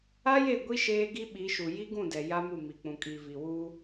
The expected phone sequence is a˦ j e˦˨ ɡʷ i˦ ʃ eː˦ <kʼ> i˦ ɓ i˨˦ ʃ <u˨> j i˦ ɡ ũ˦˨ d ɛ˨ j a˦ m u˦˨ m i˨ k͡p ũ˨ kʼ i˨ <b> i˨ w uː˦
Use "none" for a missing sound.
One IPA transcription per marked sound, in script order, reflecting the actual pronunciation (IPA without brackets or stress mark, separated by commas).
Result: ɡ, u˨, v